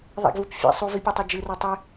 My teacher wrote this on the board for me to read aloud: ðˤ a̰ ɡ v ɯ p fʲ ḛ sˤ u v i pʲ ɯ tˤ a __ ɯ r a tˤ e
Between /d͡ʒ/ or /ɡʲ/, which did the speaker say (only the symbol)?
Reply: d͡ʒ